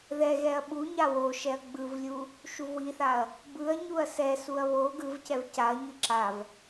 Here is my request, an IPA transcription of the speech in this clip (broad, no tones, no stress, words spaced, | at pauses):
ðɛɣɛɐ̯ ɓu ɲawoʃɛɐ̯ ɡ͡bɯvlʲu | ʃuvwiθaɐ̯ | bɯɐ̯ ɲuɐ̯sɛsuɐ̯ βo ɡɯvcɛv caɐ̯ɲɯ ǁav